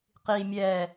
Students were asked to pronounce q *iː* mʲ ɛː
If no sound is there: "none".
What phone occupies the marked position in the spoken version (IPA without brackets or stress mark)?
iː